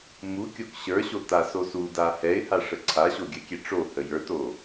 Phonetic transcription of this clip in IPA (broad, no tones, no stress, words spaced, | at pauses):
mukʲok ɕə˞ɕo tasosuda hɛɪ̯ha ʂəǀʰaɕo ɡʲəkʲɛ ʈ͡ʂohə jə˞to